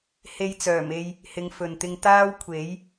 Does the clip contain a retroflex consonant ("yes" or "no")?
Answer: no